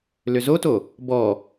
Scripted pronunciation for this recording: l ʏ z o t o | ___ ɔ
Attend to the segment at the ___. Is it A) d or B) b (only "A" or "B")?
B